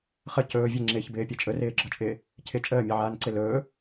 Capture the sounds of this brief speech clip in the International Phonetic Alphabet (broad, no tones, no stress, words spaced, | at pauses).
χə cɵː vʲeŋ͡ǁɪːçbɪːpʲɛ t͡ʃʼɵrɪːɡ͡ǁɒt͡ʃʼɪː | cʰɪ t͡ʃʼəːmʲɛʕaːnǀɪ lɵː